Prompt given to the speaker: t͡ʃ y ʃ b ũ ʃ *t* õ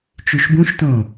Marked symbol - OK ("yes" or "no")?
yes